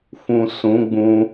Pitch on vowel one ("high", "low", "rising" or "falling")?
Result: low